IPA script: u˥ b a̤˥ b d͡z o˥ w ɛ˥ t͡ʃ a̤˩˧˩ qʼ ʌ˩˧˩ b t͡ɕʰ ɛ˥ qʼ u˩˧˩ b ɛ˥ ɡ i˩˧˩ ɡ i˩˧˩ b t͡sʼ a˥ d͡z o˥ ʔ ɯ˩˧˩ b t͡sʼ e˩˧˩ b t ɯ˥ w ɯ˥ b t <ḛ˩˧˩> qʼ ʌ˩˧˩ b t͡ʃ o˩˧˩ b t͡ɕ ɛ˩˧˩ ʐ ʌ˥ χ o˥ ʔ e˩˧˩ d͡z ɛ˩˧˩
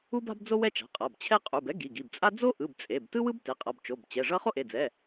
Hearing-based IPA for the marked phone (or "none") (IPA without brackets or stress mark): e˩˧˩